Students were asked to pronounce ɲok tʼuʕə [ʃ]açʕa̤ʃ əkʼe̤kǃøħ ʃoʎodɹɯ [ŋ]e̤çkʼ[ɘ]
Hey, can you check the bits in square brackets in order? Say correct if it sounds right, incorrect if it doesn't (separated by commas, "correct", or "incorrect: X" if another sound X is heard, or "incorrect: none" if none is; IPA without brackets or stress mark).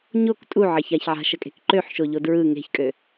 incorrect: ç, correct, incorrect: ø